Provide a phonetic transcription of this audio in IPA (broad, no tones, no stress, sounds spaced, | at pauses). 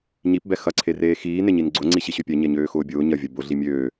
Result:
ɲ i p b ɛ x ɐ ǀʰ e r eː x iː n e ɲ i n ɡ͡ǀ ʊ ŋ͡ǀ i ɕ i ɕ ø pʲ ɛ ɲ ɛ ɲ øː x ʊː bʲ ʊː ɲ ɐ vʲ ɐ b ʊ ɮ i mʲ øː